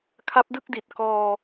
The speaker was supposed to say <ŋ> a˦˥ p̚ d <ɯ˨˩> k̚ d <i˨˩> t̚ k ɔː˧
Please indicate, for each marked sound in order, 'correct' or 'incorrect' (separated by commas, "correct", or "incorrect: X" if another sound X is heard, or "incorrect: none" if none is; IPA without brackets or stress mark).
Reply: incorrect: kʰ, incorrect: ɯ˥˩, correct